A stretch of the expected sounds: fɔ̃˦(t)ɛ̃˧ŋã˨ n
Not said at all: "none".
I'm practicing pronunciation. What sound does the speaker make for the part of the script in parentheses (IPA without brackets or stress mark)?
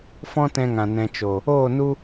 t